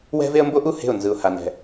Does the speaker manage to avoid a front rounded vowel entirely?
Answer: yes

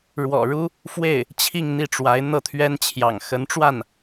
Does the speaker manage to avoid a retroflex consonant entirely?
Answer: no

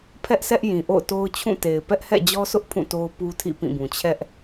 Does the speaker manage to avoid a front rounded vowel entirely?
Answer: yes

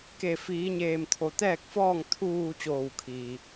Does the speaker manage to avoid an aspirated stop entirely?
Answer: no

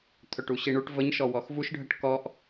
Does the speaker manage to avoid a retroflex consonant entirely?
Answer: no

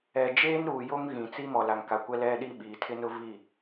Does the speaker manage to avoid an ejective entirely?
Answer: yes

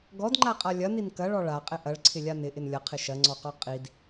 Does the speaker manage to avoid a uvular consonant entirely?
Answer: no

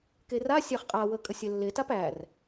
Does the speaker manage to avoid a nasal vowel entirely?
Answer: yes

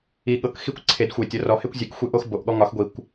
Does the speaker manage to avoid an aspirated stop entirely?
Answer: no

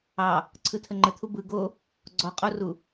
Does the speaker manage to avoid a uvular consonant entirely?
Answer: no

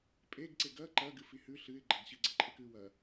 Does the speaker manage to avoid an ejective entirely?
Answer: no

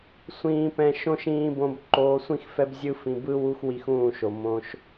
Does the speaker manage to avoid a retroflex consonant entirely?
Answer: yes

